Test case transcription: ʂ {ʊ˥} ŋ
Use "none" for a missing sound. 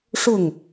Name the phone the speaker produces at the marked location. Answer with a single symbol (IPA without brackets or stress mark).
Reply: ʊ˥˩